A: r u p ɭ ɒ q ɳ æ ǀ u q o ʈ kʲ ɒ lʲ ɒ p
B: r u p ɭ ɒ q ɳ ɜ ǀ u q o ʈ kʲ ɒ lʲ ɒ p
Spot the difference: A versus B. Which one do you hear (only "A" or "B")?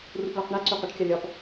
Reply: A